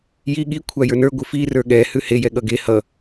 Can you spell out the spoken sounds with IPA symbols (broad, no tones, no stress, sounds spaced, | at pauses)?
j i ɠ i kʷʰ a j ə˞ n ə˞ ɡʷ ɨ f i r ə˞ ɠ ɛ h ʉ h e j ɛ ɠ ʌ ɡ e h ʌ